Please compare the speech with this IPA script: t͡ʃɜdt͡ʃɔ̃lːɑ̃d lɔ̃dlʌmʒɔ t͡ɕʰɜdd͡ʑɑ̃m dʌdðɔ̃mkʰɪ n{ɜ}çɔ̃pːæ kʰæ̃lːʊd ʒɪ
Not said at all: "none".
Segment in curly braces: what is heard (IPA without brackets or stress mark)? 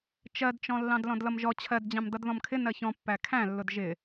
ɜ